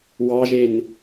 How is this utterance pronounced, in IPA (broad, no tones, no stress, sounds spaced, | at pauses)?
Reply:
w ɑ ʒ e n